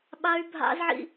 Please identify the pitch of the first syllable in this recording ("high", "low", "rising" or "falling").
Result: high